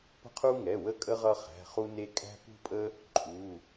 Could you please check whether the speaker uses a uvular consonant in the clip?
yes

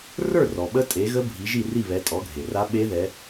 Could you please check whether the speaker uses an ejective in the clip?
yes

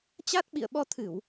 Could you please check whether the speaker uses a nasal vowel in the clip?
no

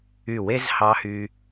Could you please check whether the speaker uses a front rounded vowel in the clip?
yes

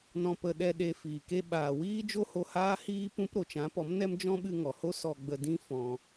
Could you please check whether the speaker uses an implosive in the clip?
yes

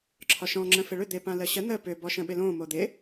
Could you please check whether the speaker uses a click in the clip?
yes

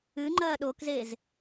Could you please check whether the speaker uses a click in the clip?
yes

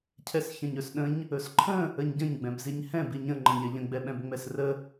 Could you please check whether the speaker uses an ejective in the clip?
no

